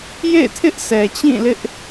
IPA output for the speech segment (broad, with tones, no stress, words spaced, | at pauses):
jḛ˦˨ɪ̯tʰɪ˦ʔ sʰɛ˨t͡ɕĩ˦˨lɪ˦ʔ